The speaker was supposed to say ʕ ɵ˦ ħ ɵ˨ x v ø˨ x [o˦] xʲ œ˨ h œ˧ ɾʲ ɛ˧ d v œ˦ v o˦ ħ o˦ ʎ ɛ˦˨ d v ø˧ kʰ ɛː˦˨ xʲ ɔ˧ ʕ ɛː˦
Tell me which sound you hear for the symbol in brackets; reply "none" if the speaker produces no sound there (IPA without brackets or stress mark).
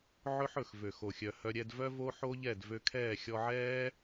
o˨